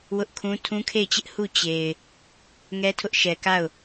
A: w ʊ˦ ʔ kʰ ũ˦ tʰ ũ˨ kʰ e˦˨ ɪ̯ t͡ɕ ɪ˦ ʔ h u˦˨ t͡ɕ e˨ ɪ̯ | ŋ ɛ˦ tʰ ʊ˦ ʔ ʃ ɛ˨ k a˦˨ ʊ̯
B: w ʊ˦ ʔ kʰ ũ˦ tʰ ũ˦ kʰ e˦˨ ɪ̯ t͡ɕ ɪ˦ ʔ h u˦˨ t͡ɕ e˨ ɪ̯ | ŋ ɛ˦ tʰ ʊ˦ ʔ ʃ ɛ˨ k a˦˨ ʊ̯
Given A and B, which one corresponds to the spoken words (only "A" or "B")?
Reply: B